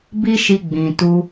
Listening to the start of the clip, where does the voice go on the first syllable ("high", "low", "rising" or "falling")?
high